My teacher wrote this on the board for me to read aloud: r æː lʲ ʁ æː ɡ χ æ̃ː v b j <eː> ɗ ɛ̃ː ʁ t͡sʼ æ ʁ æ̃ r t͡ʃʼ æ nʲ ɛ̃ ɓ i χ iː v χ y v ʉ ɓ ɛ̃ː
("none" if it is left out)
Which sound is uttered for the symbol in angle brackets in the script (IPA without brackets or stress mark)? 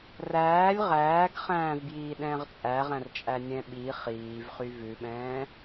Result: iː